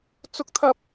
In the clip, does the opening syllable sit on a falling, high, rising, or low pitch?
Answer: high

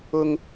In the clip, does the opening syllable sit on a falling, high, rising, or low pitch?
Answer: high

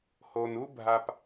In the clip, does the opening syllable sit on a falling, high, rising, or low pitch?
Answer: low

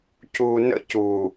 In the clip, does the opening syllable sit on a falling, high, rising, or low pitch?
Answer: low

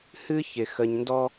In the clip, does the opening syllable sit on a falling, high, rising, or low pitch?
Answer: high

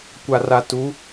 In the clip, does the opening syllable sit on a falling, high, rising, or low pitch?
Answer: low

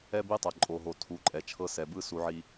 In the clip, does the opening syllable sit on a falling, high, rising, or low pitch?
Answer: high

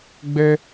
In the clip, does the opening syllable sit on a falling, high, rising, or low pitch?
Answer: high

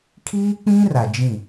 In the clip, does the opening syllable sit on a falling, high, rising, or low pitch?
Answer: high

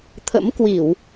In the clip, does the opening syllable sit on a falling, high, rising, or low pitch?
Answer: rising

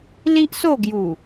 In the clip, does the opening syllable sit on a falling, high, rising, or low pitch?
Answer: high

